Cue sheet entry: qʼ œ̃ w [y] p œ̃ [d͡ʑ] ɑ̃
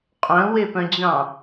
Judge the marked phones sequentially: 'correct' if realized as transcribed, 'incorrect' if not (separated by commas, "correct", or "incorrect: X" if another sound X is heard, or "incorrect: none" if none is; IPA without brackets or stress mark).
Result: incorrect: e, correct